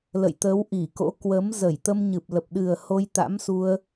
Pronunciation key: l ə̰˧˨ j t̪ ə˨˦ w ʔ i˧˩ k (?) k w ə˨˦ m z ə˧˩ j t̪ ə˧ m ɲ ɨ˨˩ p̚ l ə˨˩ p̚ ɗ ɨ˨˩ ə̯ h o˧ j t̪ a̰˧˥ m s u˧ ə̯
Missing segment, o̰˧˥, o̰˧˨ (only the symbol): o̰˧˥